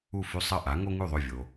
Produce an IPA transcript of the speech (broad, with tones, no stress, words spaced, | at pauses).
u˥˩fʉ˥˩ sˤɐ˥˩ʔa˩˥ŋo˥ŋʉ˥˩ ðˤɵ˥˩vʲo˩